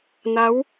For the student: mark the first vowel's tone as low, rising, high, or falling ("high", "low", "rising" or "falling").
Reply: rising